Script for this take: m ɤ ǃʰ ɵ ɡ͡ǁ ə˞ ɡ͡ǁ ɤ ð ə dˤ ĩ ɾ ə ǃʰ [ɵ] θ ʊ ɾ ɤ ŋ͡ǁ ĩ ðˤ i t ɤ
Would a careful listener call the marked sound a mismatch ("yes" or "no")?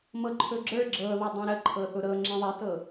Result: yes